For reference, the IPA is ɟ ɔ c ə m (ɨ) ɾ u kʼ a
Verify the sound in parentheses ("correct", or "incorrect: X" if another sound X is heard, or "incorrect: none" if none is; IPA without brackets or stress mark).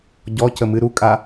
correct